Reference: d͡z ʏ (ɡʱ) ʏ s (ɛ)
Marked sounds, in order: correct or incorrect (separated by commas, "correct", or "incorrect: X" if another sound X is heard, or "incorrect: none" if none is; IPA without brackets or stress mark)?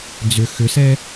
incorrect: x, correct